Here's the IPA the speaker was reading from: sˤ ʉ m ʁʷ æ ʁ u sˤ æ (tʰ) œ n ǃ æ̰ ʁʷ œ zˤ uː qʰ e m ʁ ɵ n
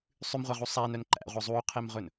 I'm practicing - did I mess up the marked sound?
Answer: yes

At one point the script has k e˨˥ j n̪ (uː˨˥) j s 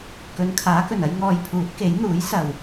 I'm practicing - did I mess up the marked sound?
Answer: no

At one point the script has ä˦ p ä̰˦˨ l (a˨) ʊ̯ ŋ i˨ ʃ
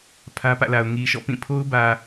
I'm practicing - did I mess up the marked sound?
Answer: no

